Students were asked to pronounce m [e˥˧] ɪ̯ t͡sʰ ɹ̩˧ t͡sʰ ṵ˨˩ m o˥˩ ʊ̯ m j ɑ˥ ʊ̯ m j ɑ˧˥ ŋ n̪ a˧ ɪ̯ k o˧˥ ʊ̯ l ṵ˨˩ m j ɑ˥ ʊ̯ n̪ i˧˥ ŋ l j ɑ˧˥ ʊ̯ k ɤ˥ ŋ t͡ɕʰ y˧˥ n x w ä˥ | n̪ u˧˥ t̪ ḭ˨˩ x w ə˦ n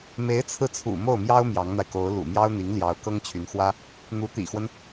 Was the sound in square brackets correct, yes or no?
no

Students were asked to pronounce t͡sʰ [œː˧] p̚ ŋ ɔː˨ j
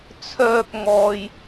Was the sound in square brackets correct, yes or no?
yes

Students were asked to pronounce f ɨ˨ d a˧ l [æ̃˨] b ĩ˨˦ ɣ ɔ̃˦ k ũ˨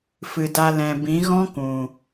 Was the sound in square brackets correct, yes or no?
no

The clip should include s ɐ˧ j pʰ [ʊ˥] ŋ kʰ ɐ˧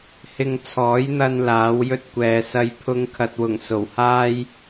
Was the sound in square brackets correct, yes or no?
yes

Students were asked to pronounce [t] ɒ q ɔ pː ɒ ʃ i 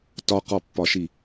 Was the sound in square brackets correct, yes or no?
yes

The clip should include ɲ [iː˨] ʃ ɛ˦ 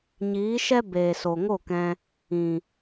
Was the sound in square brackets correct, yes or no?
no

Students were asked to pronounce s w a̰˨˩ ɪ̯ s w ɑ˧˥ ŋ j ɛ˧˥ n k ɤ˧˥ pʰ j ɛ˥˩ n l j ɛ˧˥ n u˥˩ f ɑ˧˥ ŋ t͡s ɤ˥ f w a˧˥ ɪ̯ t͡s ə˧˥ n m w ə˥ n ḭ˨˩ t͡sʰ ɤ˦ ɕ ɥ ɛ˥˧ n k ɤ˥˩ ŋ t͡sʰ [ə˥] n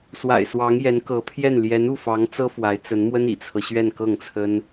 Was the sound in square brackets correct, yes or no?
yes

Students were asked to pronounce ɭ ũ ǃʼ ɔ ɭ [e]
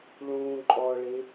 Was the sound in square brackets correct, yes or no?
yes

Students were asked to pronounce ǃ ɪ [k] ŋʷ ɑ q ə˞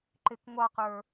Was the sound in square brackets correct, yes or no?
yes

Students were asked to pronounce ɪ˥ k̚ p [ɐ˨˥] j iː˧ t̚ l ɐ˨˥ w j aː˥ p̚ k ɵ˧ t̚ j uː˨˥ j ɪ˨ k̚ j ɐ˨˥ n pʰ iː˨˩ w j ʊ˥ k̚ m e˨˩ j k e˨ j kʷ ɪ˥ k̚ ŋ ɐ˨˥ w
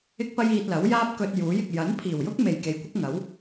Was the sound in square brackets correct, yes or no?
no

